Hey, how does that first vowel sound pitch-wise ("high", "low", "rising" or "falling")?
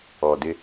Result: low